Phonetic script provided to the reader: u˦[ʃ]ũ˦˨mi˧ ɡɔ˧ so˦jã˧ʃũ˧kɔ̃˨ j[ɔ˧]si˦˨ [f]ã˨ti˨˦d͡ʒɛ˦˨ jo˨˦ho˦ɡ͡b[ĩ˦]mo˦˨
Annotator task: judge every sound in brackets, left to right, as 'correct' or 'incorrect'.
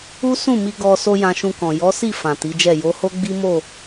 incorrect: s, incorrect: ɔ˨˦, correct, incorrect: i˦

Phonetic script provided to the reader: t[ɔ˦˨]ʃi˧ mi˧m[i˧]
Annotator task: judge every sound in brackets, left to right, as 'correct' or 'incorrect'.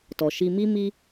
incorrect: ɔ˨, correct

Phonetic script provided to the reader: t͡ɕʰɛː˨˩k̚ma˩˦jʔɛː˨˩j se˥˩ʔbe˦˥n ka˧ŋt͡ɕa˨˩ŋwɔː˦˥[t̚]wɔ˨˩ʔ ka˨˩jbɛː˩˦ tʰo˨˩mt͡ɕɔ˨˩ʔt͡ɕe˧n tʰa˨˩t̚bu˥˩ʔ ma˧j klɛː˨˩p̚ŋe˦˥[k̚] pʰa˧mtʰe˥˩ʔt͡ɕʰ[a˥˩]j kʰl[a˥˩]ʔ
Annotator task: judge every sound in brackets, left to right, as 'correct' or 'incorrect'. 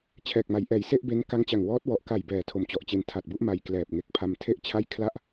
correct, correct, correct, correct

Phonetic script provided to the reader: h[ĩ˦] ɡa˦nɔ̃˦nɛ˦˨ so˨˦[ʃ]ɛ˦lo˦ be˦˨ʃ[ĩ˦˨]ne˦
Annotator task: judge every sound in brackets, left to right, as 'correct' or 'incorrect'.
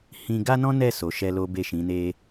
correct, correct, incorrect: ĩ˨˦

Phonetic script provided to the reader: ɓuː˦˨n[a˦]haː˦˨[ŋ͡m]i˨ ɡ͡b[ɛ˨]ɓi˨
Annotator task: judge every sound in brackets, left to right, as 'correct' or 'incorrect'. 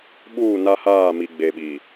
correct, incorrect: m, incorrect: e˨

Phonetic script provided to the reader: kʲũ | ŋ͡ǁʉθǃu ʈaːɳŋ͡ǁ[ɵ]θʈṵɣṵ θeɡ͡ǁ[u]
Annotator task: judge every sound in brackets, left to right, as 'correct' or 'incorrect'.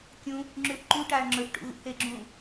correct, incorrect: ũ

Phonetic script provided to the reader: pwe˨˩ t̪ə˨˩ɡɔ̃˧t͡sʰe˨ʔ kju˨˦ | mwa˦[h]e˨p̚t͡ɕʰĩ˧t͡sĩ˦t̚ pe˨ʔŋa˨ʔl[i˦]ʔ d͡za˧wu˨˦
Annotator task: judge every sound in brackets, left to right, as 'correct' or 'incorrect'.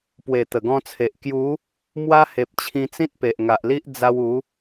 correct, correct

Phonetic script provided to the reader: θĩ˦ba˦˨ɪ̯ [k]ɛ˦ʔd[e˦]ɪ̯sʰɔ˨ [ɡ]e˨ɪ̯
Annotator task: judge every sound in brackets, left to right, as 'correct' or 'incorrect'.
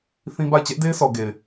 incorrect: t͡ɕ, correct, correct

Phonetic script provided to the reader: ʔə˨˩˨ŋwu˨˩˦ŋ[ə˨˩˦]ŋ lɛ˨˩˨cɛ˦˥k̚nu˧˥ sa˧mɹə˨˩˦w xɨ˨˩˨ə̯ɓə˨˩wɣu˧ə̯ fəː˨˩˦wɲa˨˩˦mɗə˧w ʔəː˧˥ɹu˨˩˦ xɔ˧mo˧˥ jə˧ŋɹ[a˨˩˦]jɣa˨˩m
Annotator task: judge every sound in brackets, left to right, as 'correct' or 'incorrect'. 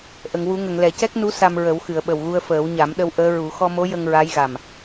incorrect: ə˨˩˨, incorrect: a˧˥

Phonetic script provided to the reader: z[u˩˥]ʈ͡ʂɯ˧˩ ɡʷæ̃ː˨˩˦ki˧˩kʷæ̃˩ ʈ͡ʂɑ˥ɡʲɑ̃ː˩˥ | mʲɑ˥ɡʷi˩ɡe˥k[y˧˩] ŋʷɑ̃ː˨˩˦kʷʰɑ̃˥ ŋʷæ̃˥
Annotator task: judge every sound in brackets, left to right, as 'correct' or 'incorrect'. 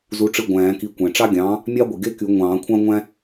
correct, incorrect: y˨˩˦

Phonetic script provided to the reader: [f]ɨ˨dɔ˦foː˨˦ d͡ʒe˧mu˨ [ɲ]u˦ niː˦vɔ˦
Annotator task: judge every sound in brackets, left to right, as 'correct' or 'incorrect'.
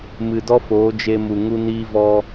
incorrect: m, incorrect: ŋ

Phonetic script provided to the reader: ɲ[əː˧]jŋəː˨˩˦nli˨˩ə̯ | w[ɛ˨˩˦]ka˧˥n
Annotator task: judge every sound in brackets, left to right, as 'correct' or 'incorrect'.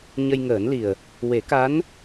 incorrect: ə˧, incorrect: e˨˩˦

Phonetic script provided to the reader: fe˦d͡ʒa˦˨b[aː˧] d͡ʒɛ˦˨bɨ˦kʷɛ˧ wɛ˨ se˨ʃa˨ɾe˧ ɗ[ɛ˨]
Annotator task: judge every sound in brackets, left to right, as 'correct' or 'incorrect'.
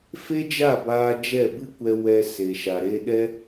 correct, incorrect: ɛ˧

